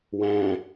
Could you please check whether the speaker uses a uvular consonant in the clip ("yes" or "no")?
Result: no